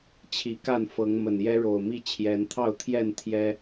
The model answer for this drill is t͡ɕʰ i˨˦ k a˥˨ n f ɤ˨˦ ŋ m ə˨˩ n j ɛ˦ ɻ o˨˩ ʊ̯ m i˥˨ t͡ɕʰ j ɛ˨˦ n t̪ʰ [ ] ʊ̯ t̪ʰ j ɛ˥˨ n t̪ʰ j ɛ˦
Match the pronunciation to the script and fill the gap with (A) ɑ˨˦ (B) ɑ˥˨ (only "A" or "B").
B